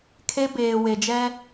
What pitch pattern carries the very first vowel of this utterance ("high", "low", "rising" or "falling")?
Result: high